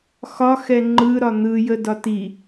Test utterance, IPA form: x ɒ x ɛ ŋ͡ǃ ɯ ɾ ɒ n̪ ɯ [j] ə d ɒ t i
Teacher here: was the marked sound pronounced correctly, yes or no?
yes